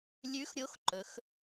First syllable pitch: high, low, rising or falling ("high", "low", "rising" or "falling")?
rising